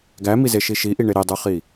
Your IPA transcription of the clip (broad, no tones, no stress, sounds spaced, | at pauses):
ɡ æ m i z e ʃ i ʃ i ʔ i ɳ e ɾ e dˤ u χ i